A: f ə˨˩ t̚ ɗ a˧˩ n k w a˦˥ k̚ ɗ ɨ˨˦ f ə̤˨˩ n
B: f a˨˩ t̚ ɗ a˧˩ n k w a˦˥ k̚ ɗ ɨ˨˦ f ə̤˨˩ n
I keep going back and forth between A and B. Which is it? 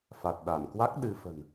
B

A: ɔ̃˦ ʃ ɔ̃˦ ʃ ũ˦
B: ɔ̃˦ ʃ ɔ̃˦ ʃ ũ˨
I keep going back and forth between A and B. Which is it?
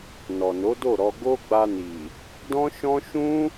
A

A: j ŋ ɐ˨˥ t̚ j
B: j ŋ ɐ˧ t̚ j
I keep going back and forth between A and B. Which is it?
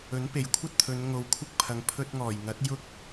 A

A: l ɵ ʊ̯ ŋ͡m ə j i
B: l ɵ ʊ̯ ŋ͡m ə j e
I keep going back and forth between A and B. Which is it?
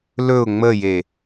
B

